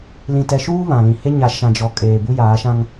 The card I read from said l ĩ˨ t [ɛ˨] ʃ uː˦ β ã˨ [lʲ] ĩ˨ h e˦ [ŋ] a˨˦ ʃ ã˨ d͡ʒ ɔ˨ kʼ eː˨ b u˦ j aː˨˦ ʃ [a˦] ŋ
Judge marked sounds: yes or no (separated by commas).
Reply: yes, no, no, no